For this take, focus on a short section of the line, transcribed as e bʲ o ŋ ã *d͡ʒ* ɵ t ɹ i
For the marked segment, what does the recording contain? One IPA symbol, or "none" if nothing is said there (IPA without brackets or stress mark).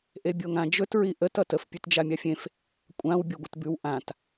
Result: d͡ʒ